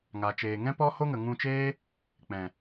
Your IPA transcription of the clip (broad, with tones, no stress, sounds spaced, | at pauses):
ŋ a˨ t͡ʃ eː˨ ŋ ɛ̃˦ p ɔ˦ h o˦ ŋ ə˨ ŋ ũ˧ t͡ʃ eː˦ | k͡p ɛ̃˨